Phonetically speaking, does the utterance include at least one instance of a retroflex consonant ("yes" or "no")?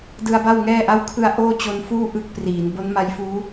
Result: no